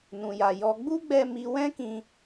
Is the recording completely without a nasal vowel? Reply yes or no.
no